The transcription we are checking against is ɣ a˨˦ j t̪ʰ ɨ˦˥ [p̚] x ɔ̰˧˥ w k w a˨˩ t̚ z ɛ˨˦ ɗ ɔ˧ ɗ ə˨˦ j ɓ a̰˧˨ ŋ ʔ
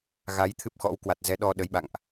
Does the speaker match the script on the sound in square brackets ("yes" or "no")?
yes